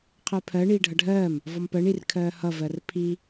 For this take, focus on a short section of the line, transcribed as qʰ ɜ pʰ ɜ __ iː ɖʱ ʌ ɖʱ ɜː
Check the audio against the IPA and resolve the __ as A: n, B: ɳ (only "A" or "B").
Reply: B